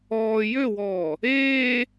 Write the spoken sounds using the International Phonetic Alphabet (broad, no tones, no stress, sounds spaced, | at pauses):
ɔː j ø w ɔː | eː